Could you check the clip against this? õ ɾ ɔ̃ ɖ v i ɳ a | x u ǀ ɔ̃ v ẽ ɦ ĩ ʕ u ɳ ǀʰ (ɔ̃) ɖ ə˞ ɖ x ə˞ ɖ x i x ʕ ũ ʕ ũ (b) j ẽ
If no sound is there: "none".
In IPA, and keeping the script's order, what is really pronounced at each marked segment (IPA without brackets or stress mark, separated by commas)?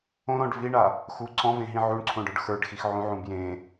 õ, b